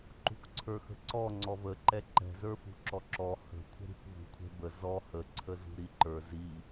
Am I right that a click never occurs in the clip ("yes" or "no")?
no